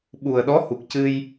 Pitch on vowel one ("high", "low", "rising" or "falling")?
low